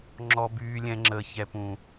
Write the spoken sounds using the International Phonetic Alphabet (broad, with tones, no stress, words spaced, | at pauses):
ŋ͡ǁɔ˧byː˧lʲɛ̃˧ ŋ͡ǁəː˨çɛ˨pũ˨